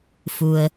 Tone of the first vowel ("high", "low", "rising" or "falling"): low